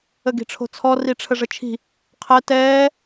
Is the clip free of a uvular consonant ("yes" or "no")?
no